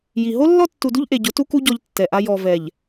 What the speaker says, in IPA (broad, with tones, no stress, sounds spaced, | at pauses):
j i˨ ɦ o˦ lː ɔ˦ tː u˨ d u˦ ʎ ʔ e˨ ɟ ʊ˨˦ t u˦ k u˦ ɟ ɔ˦ ʎ tː ɛ˨ ʔ a˦ j ɔ˨ v ɛ˨ ʎ